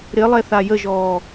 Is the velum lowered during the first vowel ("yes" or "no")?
no